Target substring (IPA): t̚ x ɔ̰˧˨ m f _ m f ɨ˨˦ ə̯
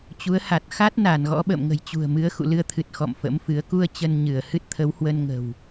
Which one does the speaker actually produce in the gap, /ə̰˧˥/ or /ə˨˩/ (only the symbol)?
ə̰˧˥